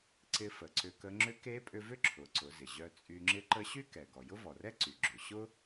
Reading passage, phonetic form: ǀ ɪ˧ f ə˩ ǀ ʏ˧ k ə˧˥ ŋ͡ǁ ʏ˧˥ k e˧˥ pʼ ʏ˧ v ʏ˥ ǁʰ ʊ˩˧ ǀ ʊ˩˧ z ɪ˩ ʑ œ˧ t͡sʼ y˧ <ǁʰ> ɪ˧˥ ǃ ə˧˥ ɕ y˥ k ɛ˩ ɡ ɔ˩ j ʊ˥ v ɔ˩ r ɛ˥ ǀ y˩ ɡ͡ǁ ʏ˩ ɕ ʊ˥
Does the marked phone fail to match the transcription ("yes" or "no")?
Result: yes